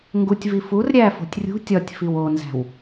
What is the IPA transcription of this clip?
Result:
ŋ ɡ u tʲ v i f u r ɾʲ æ f o̤ tʲ rʲ ṳ tʲ ɒ tʲ f i w o n z æ̤ w

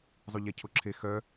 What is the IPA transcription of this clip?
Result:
zˤ u ʎ ɛ cʰ o ǁʰ e x œ

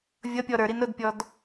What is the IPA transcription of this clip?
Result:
vʲ ʌ pʲ ɔ ɾ ə˞ ɾ i n ɾ ʊ d pʲ ɔ d

